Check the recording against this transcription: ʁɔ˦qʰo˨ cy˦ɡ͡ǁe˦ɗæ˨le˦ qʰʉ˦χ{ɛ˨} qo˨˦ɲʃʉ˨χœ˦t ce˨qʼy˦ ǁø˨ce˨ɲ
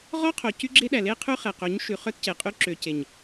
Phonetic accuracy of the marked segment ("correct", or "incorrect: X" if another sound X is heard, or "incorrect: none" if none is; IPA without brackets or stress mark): correct